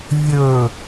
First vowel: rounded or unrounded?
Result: rounded